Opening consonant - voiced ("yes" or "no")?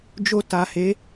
yes